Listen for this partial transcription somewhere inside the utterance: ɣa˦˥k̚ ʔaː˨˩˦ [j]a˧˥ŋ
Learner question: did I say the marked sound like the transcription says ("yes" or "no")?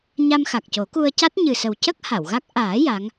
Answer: yes